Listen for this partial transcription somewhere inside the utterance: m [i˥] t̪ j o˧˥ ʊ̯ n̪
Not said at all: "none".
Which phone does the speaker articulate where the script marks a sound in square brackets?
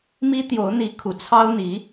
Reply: i˥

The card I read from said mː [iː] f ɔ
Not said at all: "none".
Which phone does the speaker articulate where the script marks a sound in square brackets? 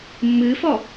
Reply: ɨː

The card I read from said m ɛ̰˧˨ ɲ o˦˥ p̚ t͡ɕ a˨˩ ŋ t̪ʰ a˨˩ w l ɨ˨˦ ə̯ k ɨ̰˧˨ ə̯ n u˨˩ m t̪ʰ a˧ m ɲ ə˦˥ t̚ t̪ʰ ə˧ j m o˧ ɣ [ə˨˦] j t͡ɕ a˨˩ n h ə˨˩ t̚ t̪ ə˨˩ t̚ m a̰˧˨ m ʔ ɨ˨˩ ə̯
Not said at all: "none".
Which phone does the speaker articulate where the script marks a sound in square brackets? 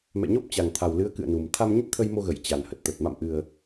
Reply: ə˧˩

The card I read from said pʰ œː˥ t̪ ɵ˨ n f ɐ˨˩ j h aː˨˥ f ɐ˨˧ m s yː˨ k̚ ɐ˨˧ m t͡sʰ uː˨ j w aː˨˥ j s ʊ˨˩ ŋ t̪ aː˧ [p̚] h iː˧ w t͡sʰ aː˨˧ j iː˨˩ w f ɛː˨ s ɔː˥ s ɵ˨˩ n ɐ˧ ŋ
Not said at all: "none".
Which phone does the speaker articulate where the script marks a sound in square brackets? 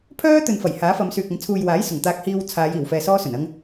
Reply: k̚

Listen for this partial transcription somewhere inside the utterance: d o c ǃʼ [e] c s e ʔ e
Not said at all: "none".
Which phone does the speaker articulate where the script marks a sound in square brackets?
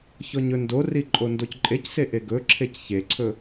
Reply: e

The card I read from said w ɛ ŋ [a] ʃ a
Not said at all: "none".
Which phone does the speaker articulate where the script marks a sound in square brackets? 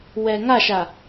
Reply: a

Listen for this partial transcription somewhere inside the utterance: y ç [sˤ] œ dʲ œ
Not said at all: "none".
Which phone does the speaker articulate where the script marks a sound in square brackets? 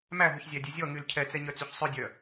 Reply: sˤ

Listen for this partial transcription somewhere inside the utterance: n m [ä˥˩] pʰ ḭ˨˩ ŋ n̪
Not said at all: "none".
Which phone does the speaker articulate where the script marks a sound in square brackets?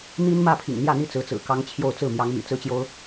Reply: ä˥˩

